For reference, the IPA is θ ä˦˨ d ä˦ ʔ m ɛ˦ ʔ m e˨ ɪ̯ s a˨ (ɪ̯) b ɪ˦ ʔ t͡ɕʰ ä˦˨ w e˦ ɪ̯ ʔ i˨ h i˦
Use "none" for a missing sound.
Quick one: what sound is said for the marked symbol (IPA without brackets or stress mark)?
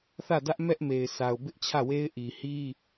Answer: ʊ̯